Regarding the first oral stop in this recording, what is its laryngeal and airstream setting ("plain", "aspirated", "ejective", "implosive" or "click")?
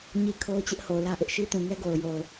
aspirated